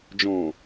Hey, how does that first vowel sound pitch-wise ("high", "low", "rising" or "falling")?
low